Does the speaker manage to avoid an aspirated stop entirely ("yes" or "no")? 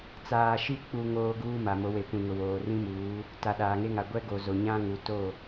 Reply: yes